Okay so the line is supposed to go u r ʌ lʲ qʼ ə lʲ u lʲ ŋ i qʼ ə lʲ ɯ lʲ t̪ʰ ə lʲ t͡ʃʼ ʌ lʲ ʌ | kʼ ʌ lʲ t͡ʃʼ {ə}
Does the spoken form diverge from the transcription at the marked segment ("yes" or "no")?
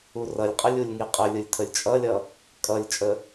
no